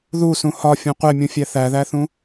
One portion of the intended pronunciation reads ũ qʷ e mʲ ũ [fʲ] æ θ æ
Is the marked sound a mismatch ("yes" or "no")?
no